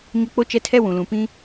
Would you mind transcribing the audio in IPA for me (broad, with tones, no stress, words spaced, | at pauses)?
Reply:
ɲʊ˦ k͡po˦t͡ʃɛ˦tʰɛ˦ wũ˨lũ˨pĩ˦